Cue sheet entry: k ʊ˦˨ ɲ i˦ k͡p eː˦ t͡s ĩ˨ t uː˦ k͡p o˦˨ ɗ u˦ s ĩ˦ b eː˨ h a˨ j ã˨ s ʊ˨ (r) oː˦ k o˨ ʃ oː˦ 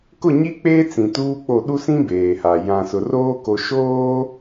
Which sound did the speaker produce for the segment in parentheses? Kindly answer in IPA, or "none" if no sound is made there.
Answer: r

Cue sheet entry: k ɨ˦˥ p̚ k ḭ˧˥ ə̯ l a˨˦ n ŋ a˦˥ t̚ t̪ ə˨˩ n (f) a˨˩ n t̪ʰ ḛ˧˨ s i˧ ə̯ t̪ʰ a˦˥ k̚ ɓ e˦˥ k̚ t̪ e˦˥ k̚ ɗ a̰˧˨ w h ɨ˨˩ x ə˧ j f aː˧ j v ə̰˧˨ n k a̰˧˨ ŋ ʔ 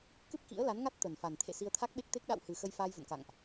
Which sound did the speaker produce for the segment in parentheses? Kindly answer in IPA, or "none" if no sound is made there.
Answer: f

